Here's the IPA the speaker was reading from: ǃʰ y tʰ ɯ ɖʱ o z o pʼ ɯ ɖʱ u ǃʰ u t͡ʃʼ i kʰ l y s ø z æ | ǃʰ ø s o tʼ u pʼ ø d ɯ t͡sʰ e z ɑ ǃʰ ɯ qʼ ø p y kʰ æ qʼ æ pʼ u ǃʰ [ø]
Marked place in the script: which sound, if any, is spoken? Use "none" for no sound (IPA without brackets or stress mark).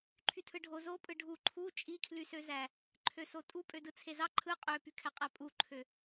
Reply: ø